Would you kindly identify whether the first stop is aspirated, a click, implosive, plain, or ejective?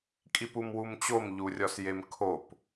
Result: ejective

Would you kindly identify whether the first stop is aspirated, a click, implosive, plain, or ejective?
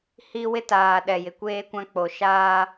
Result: plain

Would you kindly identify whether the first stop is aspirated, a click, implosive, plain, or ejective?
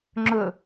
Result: click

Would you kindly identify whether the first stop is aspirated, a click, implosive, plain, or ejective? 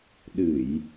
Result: implosive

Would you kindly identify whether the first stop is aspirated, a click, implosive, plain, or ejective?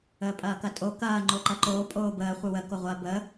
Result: ejective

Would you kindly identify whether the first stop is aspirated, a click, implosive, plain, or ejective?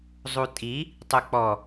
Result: ejective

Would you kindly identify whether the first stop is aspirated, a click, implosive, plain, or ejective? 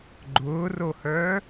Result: click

